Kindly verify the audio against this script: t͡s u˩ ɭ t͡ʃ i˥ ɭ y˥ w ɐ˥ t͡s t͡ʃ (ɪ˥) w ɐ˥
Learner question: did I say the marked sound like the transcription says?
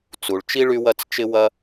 yes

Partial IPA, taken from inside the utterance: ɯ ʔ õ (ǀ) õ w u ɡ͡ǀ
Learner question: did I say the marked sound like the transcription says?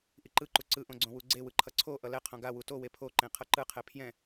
no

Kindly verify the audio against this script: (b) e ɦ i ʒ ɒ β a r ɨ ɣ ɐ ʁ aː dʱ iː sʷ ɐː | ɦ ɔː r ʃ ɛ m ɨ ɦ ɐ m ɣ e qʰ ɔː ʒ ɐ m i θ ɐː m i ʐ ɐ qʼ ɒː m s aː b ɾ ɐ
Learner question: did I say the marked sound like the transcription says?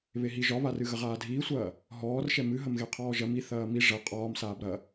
no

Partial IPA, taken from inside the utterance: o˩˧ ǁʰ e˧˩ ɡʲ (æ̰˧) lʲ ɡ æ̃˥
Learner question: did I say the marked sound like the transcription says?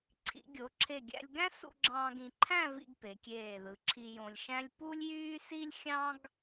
yes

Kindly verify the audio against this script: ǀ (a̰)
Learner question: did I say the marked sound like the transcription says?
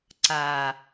no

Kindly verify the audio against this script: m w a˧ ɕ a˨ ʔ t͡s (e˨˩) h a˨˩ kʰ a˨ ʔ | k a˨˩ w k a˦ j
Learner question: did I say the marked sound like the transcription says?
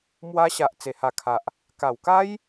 yes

